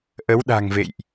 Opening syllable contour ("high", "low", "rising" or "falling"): rising